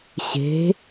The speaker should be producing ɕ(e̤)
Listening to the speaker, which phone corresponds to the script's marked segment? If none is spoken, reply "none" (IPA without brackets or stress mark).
e̤